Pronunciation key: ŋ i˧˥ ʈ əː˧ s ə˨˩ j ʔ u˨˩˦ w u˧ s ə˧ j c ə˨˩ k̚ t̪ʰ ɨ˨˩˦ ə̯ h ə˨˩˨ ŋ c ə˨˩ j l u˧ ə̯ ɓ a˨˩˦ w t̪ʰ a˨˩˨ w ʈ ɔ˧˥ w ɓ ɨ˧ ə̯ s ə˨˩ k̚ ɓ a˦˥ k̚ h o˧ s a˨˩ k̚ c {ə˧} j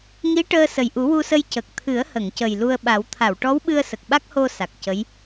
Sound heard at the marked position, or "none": ə˧˥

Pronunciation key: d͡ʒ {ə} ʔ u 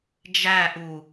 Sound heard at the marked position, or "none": æ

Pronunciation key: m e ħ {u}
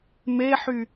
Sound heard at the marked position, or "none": y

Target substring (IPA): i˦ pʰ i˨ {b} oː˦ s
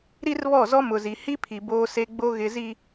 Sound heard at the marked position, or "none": b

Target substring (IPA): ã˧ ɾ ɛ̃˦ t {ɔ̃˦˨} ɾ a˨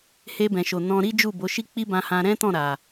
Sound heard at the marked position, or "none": ɔ̃˦˨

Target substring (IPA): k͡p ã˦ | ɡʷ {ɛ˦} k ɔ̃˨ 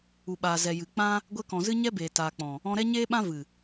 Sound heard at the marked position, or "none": ɛ˧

